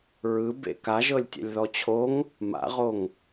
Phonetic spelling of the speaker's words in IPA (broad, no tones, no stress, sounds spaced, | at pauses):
ɹ ɯ b ḛ k a ʒ ɤ lʲ tʲ ɛ̰ lʲ ð ɔ t͡ɕʰ o ŋ | m a̰ ʁ o ŋ